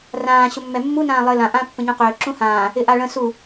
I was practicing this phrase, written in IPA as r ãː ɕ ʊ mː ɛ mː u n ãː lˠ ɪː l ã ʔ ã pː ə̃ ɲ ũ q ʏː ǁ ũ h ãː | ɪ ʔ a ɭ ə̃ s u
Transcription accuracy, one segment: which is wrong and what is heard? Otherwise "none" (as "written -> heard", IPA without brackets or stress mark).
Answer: none